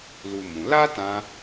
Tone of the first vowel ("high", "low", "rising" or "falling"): high